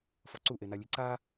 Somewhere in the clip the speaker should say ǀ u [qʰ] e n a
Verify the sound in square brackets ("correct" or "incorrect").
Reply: incorrect